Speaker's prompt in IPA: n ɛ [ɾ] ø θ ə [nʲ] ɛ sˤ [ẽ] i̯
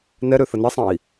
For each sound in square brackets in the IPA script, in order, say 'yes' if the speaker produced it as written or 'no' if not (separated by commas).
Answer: yes, no, yes